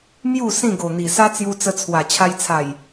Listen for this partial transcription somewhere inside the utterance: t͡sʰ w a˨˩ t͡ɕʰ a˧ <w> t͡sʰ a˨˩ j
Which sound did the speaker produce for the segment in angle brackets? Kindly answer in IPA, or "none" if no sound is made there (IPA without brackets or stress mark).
j